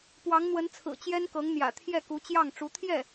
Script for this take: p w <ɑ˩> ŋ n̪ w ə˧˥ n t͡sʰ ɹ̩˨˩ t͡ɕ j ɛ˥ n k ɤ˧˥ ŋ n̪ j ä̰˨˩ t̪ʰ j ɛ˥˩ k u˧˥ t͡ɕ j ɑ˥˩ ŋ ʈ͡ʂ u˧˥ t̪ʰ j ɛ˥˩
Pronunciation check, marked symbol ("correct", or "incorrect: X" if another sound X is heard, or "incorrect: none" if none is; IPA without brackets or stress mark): incorrect: ɑ˧˥